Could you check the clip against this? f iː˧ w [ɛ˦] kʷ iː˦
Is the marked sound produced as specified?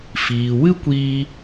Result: no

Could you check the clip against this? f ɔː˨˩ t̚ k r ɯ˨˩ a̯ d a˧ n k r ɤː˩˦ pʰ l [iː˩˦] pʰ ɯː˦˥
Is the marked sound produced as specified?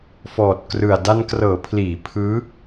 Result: yes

